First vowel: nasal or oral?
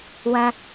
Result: nasal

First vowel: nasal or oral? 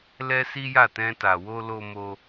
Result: oral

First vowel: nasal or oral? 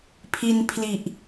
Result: oral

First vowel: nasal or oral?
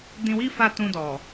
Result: nasal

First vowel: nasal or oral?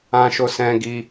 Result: nasal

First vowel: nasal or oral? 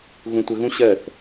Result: nasal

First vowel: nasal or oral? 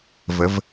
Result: oral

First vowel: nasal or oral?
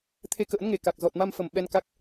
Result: oral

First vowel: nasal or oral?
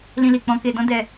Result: nasal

